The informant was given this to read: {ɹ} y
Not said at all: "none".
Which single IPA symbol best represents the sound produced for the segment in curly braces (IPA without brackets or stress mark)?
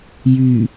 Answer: j